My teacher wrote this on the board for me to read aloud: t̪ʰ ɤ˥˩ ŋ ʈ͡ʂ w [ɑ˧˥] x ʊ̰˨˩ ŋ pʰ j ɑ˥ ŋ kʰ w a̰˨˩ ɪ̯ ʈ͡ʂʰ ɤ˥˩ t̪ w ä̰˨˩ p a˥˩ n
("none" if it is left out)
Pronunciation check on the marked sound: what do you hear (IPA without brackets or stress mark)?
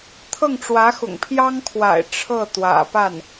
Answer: ä˧˥